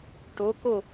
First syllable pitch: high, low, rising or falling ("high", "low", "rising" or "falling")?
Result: rising